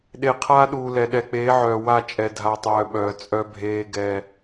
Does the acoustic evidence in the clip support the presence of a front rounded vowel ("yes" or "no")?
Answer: yes